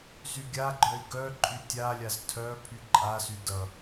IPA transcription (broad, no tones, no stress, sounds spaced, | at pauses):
z y ɡʲ a ɡ͡ǃ œ i̯ ɡ œ ǃʼ y tʲ a lʲ a z tʰ œ pʰ y ǃʼ a s y d ʌ